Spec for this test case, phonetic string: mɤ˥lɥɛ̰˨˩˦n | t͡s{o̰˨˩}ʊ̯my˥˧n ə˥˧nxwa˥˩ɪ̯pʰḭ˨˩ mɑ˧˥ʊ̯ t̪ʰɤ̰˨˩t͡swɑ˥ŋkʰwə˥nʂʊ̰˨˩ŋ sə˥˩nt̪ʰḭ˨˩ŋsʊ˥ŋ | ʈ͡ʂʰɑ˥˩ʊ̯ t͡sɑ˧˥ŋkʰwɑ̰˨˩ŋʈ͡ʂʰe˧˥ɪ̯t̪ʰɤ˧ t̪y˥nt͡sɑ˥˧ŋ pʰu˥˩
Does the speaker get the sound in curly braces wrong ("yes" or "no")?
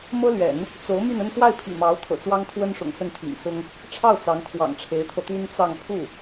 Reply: yes